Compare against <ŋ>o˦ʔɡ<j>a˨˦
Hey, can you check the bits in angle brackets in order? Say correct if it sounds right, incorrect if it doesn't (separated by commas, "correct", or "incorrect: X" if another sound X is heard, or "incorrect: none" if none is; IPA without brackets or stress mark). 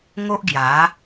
correct, correct